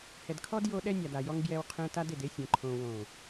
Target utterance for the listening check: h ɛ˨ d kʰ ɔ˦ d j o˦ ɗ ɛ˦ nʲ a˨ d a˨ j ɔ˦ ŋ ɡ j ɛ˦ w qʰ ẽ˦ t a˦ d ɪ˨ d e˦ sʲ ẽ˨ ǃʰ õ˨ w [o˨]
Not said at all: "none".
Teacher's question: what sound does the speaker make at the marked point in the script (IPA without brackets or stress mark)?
õ˨